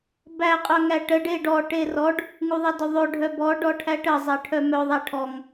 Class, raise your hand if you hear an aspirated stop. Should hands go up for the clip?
yes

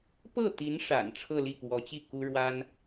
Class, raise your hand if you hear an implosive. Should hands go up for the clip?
no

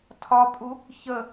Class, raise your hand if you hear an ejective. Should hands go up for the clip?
yes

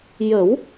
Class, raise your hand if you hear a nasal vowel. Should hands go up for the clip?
no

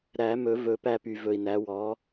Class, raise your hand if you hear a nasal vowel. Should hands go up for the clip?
no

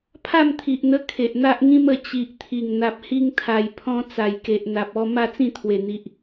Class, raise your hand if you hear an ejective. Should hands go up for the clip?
no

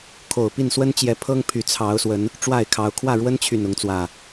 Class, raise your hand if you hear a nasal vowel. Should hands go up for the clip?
no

